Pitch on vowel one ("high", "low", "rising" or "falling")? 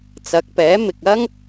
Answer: rising